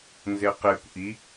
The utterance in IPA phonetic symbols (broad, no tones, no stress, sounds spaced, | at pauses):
n z e q e kʷ ʔ i